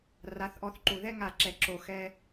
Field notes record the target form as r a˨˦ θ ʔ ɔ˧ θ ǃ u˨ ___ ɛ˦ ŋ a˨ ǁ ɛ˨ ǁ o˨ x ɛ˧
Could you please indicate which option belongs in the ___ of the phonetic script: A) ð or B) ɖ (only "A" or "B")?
A